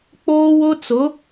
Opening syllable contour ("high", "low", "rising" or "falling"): high